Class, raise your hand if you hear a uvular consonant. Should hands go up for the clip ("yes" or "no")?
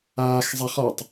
yes